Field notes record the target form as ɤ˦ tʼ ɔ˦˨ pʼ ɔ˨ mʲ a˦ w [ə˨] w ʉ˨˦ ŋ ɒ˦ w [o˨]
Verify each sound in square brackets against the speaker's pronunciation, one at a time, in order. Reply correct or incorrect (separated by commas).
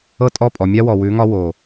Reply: incorrect, correct